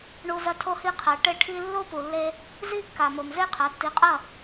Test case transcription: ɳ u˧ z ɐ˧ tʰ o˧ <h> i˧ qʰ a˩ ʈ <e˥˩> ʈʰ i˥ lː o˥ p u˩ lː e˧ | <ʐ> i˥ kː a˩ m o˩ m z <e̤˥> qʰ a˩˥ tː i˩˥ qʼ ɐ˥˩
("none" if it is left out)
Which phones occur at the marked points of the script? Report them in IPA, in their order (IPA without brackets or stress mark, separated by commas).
h, e˥˩, z, e˥